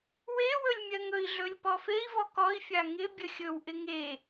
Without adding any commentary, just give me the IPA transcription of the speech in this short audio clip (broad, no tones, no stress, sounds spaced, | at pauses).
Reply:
w e w ɵ lʲ mʲ ɜ ŋ ɵ i̯ ɮ ɵ lʲ p ɔ f e i̯ v ɔ k ɔ i̯ fʲ a ŋ ɪ bʲ ə xʲ ɵ w ʔ ɪ ŋ e